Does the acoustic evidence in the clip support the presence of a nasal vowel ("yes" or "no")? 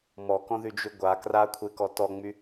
yes